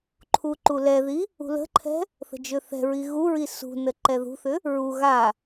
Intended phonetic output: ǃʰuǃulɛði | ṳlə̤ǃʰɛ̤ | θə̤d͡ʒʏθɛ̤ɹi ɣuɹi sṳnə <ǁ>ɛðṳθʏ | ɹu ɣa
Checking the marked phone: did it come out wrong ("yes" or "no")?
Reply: yes